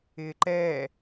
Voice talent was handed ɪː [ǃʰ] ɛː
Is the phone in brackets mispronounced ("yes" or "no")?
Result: yes